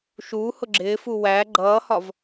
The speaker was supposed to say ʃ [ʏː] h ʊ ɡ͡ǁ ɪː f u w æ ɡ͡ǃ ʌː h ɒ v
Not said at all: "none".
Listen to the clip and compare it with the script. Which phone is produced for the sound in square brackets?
uː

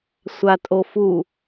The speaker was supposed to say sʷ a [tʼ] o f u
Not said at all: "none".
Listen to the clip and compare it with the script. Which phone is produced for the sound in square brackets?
tʼ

